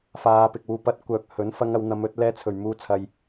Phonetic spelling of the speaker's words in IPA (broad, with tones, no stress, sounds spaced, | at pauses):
f aː˨˧ p ɪ˨ k̚ w uː˨˧ p ɐ˧ t̚ kʷ œː˨ k̚ h ɵ˨˥ n f ɐ˧ ŋ ɐ˨˧ w n̪ ɐ˨˧ m ɵ˨˥ t̚ l ɛː˧ t͡sʰ ɵ˨˩ ɥ m uː˨˥ t͡sʰ ɐ˨ j